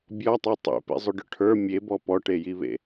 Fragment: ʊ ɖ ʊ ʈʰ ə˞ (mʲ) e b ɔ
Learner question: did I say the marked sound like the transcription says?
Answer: yes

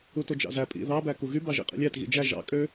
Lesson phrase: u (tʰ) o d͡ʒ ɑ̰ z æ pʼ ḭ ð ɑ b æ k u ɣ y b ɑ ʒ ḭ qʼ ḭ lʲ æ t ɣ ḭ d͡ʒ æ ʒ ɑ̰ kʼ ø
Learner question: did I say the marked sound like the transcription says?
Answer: no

